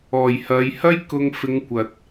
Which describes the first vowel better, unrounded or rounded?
rounded